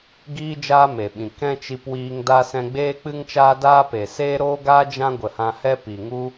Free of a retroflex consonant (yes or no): yes